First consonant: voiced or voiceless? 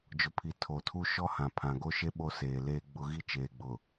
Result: voiced